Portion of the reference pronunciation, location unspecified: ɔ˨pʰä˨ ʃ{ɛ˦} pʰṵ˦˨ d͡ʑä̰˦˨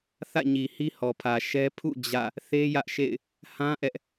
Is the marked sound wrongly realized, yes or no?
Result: no